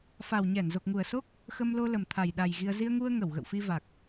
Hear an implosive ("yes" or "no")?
yes